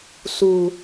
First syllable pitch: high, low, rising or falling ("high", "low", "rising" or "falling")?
low